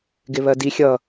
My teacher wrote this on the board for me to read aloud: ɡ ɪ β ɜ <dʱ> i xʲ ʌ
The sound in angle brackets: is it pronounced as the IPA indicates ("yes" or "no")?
no